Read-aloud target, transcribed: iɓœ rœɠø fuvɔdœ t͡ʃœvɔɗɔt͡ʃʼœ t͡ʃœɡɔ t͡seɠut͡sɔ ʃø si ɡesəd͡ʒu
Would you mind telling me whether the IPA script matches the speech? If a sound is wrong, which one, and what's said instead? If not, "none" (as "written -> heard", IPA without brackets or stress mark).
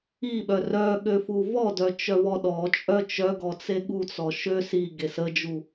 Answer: none